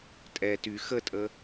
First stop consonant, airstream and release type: ejective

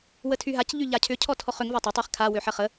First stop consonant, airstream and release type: aspirated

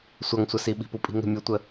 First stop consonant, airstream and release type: implosive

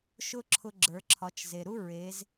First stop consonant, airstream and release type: click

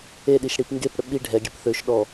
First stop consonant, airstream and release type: implosive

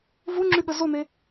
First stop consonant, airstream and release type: click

